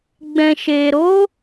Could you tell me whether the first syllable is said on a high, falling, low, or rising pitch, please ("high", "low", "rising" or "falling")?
low